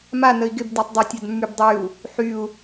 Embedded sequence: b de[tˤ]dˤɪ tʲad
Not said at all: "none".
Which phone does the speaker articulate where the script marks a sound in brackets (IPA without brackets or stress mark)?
tˤ